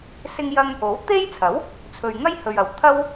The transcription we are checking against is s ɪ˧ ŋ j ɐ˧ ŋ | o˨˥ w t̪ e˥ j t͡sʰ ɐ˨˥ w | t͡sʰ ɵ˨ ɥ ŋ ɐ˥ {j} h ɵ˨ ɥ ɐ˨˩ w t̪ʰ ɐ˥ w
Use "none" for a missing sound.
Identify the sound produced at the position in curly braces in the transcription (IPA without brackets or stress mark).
j